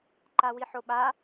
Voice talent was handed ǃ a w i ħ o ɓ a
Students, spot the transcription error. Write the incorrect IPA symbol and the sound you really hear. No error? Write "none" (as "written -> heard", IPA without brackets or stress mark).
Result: none